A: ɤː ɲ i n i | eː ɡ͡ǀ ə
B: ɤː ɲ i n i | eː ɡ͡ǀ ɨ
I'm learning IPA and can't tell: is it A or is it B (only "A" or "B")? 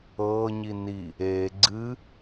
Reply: B